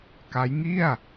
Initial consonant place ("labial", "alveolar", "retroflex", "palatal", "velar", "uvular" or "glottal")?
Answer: velar